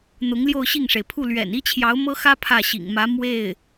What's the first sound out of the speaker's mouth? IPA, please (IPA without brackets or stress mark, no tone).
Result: n̪